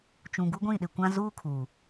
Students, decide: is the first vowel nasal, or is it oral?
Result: nasal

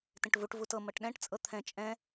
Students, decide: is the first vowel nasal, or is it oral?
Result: nasal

